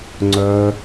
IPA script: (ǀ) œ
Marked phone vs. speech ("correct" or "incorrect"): incorrect